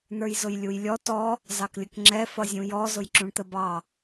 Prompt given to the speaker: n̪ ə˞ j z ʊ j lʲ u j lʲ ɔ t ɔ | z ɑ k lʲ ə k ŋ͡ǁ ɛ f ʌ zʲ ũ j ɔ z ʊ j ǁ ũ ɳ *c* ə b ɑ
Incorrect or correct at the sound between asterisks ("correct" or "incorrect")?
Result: incorrect